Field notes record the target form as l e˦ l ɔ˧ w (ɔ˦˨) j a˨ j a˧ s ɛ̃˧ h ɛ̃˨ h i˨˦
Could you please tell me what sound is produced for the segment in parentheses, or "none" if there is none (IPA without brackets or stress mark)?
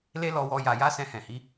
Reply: ɔ˧